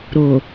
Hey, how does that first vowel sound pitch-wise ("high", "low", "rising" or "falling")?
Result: low